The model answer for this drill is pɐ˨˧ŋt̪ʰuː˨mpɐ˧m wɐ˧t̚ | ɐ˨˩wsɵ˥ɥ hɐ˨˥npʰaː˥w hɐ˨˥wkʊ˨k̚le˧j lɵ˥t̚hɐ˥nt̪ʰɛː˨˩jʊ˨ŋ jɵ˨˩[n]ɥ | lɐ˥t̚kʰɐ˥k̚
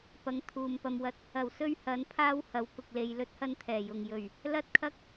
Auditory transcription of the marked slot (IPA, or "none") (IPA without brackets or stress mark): none